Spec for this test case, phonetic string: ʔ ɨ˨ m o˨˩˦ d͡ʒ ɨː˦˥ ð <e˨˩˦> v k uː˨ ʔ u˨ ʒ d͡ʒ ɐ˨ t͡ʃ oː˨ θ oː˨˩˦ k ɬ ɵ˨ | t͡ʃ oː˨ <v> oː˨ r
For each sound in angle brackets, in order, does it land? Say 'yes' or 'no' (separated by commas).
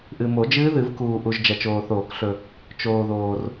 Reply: no, no